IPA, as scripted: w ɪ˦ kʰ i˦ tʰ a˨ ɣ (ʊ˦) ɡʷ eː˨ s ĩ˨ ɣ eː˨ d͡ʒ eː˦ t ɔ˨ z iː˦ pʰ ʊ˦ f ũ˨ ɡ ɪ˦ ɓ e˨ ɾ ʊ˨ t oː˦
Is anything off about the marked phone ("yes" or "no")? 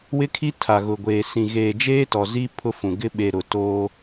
yes